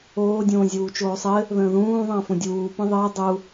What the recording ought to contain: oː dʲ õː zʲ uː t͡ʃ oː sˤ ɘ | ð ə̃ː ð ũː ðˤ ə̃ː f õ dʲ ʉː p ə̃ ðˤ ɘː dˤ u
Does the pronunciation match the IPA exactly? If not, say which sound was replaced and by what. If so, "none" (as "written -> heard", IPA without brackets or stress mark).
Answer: ʉː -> uː